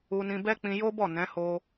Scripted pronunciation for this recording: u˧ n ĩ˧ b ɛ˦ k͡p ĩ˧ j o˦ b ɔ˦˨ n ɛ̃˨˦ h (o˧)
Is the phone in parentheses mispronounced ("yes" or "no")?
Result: no